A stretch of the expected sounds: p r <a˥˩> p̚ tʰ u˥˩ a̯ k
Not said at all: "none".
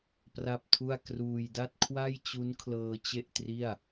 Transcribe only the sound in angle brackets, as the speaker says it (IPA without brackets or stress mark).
a˥˩